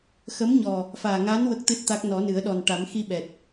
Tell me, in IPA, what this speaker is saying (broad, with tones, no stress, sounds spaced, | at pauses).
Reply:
x ə˧˥ m ɲ ɔ˨˩ | f aː˨˩ ŋ a˧˥ n w ə˦˥ k̚ t̪ ɨ˦˥ t̚ t̪ a˦˥ k̚ n ɔ˨˩˦ n ɨ˨˩˦ ə̯ ɗ ɔ˨˩ n ʈ a˨˩˦ m x i˧ ɓ ɛ˨˩ t̚